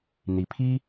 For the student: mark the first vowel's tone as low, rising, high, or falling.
rising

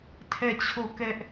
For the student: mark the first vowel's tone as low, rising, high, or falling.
falling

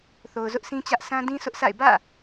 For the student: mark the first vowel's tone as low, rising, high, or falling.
low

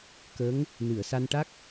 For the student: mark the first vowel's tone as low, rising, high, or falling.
rising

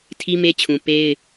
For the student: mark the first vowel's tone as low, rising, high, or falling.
high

